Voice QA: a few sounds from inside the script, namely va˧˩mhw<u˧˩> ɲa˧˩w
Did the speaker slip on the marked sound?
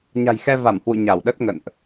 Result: yes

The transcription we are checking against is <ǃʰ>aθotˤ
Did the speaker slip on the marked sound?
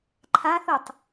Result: no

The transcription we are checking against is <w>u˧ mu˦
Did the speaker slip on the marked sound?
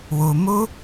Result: no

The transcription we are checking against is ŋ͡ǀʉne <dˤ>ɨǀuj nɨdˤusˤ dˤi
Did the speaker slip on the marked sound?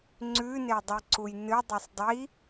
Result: no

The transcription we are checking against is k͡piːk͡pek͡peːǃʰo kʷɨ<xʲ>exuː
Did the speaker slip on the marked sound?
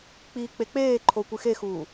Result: yes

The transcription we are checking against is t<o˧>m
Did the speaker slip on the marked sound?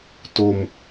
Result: no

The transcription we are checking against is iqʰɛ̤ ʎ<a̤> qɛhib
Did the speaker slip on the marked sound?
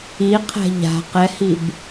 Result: no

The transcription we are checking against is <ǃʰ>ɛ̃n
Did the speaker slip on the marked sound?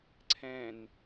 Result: yes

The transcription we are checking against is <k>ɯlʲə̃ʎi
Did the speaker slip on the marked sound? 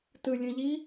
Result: yes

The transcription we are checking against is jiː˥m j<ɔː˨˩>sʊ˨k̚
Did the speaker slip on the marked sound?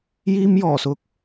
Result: no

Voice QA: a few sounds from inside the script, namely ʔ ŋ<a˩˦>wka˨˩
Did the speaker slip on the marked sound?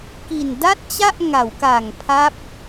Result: no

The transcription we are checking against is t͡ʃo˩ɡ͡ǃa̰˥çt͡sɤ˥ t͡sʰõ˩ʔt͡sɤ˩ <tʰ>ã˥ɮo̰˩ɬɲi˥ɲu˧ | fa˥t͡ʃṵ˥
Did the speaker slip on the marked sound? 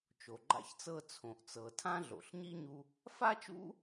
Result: no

